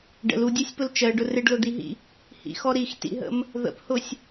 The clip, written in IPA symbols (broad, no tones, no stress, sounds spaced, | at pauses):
ɖ ə̰ l u dʲ u sʲ p ʊ l t͡ʃ ɜ ɖ ʊ r ɪ ɖ l ʊ d̪ i ɦ ḭ | h ḭ x ɔ ɾ i x t ḭ ɦ ə̰ m | ð ə̰ p h ʊ sʲ